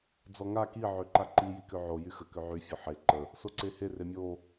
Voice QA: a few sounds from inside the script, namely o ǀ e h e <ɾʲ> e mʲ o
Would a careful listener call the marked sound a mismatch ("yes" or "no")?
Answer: yes